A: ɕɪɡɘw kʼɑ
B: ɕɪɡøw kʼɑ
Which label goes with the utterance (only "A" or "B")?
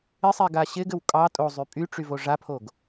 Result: A